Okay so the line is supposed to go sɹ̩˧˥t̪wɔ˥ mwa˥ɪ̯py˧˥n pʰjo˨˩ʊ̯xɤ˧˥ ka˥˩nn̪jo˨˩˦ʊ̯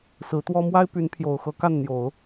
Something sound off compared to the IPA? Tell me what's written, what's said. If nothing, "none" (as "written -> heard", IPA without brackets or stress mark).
none